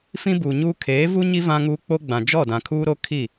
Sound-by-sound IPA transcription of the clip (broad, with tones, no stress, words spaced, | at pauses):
fĩ˦buː˨ɲuː˦ kʰeː˨˦vu˦ɲi˦ vã˦ŋuː˦ k͡po˦ɡ͡bã˨ d͡ʒɔ˦˨dã˨kʰuː˦ɾo˦ kʰi˦˨